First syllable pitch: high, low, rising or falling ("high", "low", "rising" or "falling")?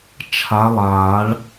rising